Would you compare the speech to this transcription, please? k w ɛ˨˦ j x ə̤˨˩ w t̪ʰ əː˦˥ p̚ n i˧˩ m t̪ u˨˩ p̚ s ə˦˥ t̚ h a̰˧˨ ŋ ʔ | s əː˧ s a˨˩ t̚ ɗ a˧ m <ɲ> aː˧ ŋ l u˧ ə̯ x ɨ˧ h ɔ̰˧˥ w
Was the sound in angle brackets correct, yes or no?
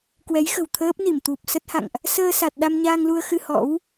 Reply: yes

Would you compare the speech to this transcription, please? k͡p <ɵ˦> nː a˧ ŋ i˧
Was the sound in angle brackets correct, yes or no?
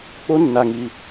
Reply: no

